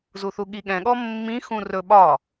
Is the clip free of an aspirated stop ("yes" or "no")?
yes